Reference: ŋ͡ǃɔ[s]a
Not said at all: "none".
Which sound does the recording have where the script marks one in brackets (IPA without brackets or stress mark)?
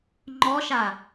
ʃ